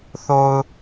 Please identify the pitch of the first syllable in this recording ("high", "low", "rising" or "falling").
low